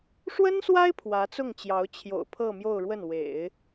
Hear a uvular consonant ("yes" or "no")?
no